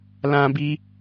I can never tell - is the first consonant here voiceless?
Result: no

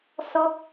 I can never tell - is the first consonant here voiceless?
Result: yes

